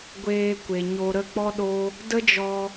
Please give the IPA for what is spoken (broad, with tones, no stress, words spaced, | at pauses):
ɡʷeː˧kʷe˨ɲo˧ ɾə˦˨k͡pɔ˦ɗo˦ | də˦d͡ʒɔ˧